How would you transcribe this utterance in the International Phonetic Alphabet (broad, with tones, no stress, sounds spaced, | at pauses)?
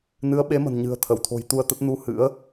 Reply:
n ɨ˨˦ ə̯ ɓ e˨˦ m ə̤˨˩ n ɲ ɨ̤˨˩ ə̯ t̪ʰ ə˧˩ w t̪ʰ o̤˨˩ j t̪ u˧ ə̯ t̪ ə˦˥ t̚ n u˧ h ɨ̰˧˥ ə̯